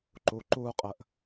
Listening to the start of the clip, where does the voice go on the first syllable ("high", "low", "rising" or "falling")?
low